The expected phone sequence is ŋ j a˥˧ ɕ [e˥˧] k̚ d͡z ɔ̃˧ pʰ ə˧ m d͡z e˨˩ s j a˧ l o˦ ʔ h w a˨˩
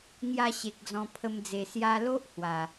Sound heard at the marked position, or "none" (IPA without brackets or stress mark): e˨